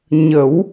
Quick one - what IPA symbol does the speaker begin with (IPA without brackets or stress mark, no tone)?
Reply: ɲ